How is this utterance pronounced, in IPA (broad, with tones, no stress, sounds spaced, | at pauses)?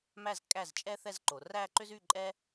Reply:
m æ˥˩ z kʼ æ˥˩ z t͡ʃʼ ɛ˥ θ ɛ˥˧ z ǃ o˨˦ r æ˥˧ ǃ ʏ˥ z y˥˧ ǃʼ ɛ˥